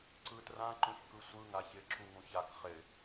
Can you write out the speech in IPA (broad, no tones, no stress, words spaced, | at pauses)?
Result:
ǀɯtrã ǃũçkɯsʷɯ ŋaçɪ ǁuŋũçak χɪ